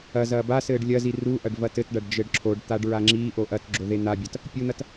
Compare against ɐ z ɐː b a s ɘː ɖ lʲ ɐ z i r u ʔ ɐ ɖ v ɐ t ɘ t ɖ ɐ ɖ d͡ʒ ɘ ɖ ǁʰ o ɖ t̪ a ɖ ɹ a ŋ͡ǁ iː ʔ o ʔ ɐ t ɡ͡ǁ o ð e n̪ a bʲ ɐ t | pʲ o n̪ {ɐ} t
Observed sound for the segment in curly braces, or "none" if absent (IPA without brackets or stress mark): ɐ